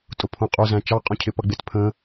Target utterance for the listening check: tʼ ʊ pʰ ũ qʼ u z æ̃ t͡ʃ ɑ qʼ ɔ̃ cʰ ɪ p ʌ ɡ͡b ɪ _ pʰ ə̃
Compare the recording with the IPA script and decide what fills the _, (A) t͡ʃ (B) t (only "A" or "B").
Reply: B